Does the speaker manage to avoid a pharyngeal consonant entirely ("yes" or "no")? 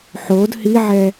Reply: no